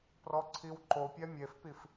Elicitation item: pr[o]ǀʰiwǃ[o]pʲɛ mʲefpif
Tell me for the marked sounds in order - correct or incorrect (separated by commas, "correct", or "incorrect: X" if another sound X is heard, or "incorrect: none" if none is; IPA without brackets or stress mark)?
incorrect: ɔ, correct